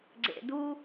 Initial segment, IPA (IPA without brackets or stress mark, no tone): ɡ͡ǀ